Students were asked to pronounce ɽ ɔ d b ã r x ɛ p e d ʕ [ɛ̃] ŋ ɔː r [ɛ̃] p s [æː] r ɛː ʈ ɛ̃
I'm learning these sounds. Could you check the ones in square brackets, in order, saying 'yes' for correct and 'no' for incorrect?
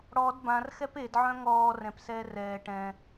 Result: no, yes, no

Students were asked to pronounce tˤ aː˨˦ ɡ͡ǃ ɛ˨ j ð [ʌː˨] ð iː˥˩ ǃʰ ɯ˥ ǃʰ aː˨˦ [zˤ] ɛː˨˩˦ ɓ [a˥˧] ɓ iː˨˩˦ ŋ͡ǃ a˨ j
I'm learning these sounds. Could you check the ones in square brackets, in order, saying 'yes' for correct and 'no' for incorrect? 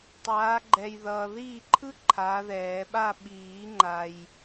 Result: yes, no, yes

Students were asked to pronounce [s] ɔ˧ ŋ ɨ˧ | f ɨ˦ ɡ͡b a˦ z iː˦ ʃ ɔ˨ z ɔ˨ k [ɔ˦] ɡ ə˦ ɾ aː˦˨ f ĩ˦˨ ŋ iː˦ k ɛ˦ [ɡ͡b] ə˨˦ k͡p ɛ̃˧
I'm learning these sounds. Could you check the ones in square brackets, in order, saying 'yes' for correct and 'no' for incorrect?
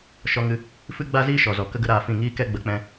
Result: no, no, yes

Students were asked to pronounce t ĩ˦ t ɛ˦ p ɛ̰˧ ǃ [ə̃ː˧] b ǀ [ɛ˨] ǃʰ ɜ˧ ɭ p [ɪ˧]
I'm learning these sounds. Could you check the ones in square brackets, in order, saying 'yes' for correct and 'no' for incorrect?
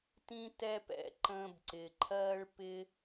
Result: yes, no, yes

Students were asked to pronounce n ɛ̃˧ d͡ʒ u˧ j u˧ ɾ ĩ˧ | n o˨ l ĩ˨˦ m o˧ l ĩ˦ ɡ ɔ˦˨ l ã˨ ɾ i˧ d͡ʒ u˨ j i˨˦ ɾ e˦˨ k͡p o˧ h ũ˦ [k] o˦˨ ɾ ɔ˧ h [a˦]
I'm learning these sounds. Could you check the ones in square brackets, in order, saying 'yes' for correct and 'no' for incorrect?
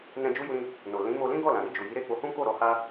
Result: yes, yes

